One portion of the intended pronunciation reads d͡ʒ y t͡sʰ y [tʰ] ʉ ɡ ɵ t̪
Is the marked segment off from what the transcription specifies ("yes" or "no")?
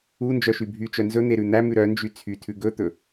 no